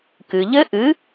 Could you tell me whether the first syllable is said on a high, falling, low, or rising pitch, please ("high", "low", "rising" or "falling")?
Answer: low